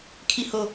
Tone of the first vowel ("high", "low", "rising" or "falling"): falling